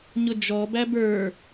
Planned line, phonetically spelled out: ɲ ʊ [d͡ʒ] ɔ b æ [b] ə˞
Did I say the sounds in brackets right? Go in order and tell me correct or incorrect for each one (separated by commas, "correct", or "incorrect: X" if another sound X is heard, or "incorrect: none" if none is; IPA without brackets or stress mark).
correct, correct